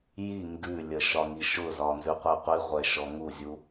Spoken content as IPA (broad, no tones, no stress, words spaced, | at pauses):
ji ŋɡʉlʲə ʃɒŋiʃʊzɒ nzʉqʷɛqʷiʁʷɛ ʃɔŋuzʲu